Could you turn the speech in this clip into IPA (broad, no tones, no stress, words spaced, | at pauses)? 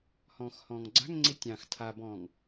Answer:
hɔ̃ːxhɔ̃ːŋɡ͡ǀa̤ŋŋ͡ǀi tʲɑ̃x tʰabɔ̃ːŋ